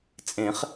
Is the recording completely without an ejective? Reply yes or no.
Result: no